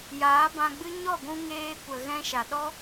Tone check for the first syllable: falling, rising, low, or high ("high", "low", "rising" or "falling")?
rising